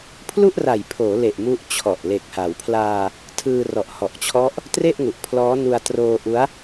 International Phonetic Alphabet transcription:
pʰ l u˥˩ ʔ r a˨˩ j pʰ oː˩˦ l e˨˩ ʔ m u˦˥ ʔ t͡ɕʰ ɔ˨˩ ʔ l e˨˩ k̚ h a˩˦ w pʰ l aː˧ | tʰ ɯː˧ r ɔ˨˩ ʔ h ɔ˨˩ ʔ t͡ɕʰ ɔ˦˥ ʔ | t r e˥˩ ʔ ŋ u˨˩ ʔ pʰ l ɔː˦˥ n u˧ a̯ t r oː˧ ʔ u˦˥ a̯

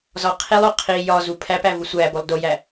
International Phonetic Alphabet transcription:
z ɒ qʰ i lˠ o qʰ i j ɒ z u pʰ æ p æ v u sʷ æ b o lˠ d o j æ

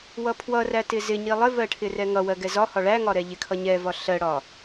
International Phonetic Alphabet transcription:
w ʌ pʰ w ʌ r æ t ɪ z ɪ ɲ i lˠ ɪ v ɜ ʈʰ ɪ r ɛ ŋ ʌ w ɜ ɡ ɛ z ɒ h ɒ ɭ æ ŋ ɒ ɾ ɛ ʎ ɪ kʰ ʌ ɲ ɛ v ɒ ɬ ɜ ɽ ɒ

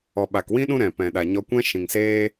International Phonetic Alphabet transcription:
ɔ˨ ɓ a˨ k w ĩ˦ ɗ ũ˦ ɾ ɛ̃˨ p ɛ̃˨ ɗ a˨ ɲ ɔ˧ kʷ ɛ̃˦ ʃ ĩ˨ ŋ s eː˦

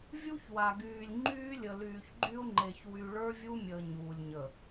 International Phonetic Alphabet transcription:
vʲ u˦ ç w a˨ ɡ yː˨ lʲ ŋ͡ǃ yː˦ lʲ ə˨ l yː˨ ç ɡ͡ǃ y˦ ʊ̯ ŋ͡ǃ e˨ ç w y˨ ɭ ə˞˦ vʲ u˦ mʲ əː˨ ɲ uː˨ lʲ ɲ ə˨

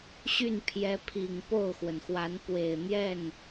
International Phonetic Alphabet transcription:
ɕ y˥˩ n pʰ j ɛ˧˥ pʰ i˨˩ ŋ p o˥˩ ʊ̯ x w ə˩ n x w a˧˥ n p w e˨˩ ɪ̯ n̪ j ɛ˥˩ n

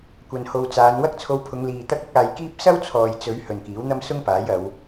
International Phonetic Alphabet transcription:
kʷ ɐ˨ n h o˨ w t͡s aː˨˧ n w ɐ˥ k̚ t͡sʰ o˧ w pʰ ʊ˨˧ ŋ l iː˨ t̪ ɐ˥ k̚ ʊ˥ k̚ aː˧ j k iː˥ p̚ s ɐ˥ w t͡sʰ ɔː˨ j t͡s ɵ˨˧ ɥ h ɵ˨ n k iː˨˥ w n̪ ɐ˥ m s ʊ˥ ŋ p aː˨˥ j ɐ˨˧ w

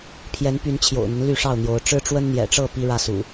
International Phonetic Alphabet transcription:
pʰ j ɛ˨˦ n p y˨˦ n t͡ɕʰ j o̰˨˩ ʊ̯ n̪ ə˦ n l y˥˨ ʂ ɑ˥˨ ʊ̯ n̪ j o˨˦ ʊ̯ ʈ͡ʂ ɻ̩˦ ʈ͡ʂ w ə˦ n n̪ j ɛ̰˨˩ ʈ͡ʂ ɤ˥˨ p i˦ ɻ ä˥˨ s ṵ˨˩

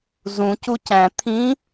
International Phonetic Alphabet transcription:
z ũ c u c æ̃ t̪ʰ ĩ

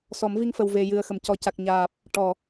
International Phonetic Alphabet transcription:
s ɔ˨˩˦ m v i˧ ŋ f ə˨˩ w v e˨˩ j ɨ˨˩ ə̯ x ə˨˩˨ m c ɔ˨˩ c a˨˩ k̚ ɲ aː˨˩ p̚ | ʈ ɔ˨˩˨

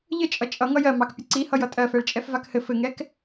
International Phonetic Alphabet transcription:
ʎ ɘ t͡ʃʼ ʌ t͡ʃʼ ʌ ŋ ʌ j ɜ m ɑ k pʲ ɘ ǀ i h ʌ j ʌ tʼ ɜ f ɛ ɭ t͡ʃʼ ɛ f v a k h ɘ f ɘ ŋ ɛ k

